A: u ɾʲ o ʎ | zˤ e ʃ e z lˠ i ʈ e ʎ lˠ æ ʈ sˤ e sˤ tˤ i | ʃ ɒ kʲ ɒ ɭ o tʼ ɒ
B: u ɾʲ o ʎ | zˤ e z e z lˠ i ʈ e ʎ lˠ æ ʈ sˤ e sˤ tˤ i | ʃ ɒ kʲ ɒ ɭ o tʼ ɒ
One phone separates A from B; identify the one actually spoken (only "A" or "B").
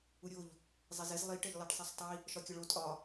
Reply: B